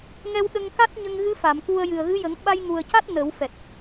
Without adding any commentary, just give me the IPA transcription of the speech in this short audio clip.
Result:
ŋɛ˧wɗə˧ŋ ka˦˥t̚ɲə˧ŋɣɨ˧˥ fa˨˩˨mku˧ə̯ jɨ˨˩ə̯ɣɨ˧˥jə˨˩˦ŋ ɓa˧jŋu˨˩ə̯ca˦˥t̚ nə˨˩˦wfɛ˨˩t̚

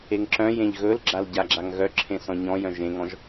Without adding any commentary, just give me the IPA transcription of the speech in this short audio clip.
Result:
eŋǁœ̃jẽʎ ɣɵlɡ͡ǁal ɟaɡ͡ǁaŋɣœǁʰẽ sɔ̃ɲɔ̃jœ̃ ʒẽŋɔ̃ʒ

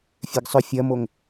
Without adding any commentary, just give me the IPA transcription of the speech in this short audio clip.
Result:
fʲeɡsˤʏ fʲɐmoŋ

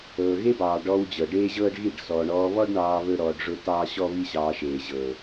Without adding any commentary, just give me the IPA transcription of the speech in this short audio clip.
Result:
ɤː˨ɣe˦bɑː˨ ɖɔ˧w d͡ʑɤ˨ɖeː˦ʑɤː˦ɖɣi˦˨ɖ sɔː˨ɳɔː˧βɔ˦ɖ ɳɑː˧ βɵ˦ɾɔː˧ɖʐʊ˦ tɑː˦ɕɔ˦βi˦ɕɑː˧ ʃeː˨ʑɤː˨

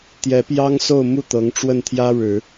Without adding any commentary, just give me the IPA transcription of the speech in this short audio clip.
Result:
t̪jɛ˧˥pjɑ˥ŋso˥˧ʊ̯ mu˥˩ t̪ɤ˧˥ŋʈ͡ʂwə˥˩nt̪ʰjä˥ɻɻ̩˨˩˦

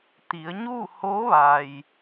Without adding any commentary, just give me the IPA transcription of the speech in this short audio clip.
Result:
t̪i˩˧ə̯ ɲuː˥˨hoː˧˥ʋa˩j

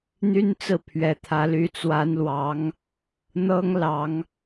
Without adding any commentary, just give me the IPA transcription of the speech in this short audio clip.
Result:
n̪y˥nt͡sɹ̩˥˩pʰɥɛ˨˩t̪ʰä˧˥ ly˧˥t͡swa˧˥nlwɑ˧˥ŋ | n̪ɤ˥ŋ lɑ˨˩˦ŋ

